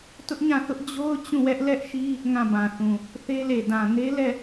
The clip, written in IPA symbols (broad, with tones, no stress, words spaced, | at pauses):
tʊ˦ʔɲã˦˨θʊ˦ʔ d͡ʑo˦ʊ̯ t͡ɕũ˦˨wɛ˦ʔlɛ˦ʔʃi˦ | ŋã˦˨bã˨θũ˨ | θe˦le˨ dã˨ ne˦ lɛ˦˨